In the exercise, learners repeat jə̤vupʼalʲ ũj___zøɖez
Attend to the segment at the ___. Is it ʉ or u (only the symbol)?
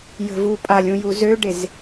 u